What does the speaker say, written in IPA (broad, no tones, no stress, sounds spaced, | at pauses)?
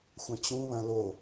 xʷ ɐ̃ t͡ɕ ũ β ɐ̃ l o